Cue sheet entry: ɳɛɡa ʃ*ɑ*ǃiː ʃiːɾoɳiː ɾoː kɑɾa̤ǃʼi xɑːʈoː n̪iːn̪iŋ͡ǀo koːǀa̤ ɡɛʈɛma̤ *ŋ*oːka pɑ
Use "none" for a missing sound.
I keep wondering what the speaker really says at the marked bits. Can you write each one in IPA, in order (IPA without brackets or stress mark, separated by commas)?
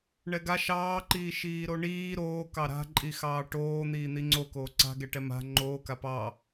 ɑː, ŋ͡ǃ